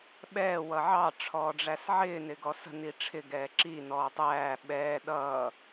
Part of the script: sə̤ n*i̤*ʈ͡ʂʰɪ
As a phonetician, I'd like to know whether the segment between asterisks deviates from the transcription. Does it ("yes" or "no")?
yes